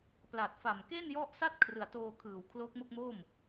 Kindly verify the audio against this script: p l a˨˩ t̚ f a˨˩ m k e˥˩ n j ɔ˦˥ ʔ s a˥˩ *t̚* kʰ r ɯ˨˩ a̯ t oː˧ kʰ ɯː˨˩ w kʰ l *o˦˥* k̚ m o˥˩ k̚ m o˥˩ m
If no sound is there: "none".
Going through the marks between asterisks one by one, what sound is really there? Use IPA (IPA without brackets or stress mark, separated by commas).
t̚, o˦˥